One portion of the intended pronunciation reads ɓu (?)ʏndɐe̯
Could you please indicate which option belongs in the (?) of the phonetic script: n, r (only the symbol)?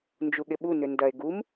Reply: n